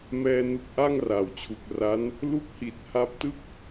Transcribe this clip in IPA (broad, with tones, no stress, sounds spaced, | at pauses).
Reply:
m ɛː˧ n u˦˥ k̚ ʔ a˥˩ ŋ r a˨˩ w t͡ɕʰ u˨˩ k̚ r a˦˥ n | l u˦˥ k̚ h i˨˩ t̚ h a˦˥ p̚ t ɯ˥˩ k̚